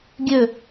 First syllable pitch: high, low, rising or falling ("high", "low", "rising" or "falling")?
low